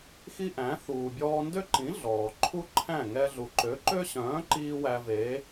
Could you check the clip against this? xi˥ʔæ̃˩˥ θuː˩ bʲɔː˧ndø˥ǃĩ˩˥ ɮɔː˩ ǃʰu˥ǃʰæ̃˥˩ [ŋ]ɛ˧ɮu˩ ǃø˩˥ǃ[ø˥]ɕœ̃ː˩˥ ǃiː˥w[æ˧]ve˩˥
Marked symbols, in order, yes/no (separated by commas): yes, yes, yes